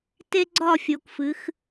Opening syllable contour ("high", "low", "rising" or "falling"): high